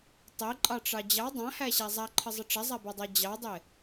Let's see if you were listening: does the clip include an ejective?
yes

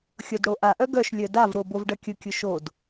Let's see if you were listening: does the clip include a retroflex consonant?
yes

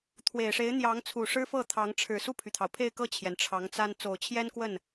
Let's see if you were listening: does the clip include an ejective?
no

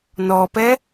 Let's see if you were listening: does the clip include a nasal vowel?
no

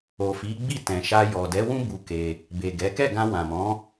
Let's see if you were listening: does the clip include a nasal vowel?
yes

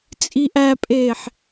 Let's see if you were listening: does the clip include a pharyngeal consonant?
yes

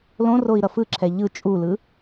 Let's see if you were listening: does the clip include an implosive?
no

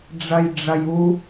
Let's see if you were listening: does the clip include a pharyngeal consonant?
no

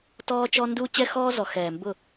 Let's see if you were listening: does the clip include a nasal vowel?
no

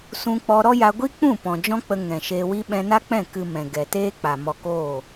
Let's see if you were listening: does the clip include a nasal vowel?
yes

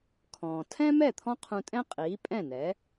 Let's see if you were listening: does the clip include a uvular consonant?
yes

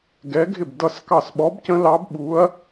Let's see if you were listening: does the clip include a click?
no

